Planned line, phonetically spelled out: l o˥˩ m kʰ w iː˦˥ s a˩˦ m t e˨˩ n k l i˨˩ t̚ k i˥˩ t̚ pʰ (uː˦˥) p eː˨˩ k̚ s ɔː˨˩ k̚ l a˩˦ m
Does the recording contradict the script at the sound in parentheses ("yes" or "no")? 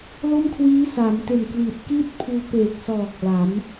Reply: yes